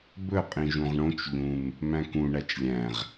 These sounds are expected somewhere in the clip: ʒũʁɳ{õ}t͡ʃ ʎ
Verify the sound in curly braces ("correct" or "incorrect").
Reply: correct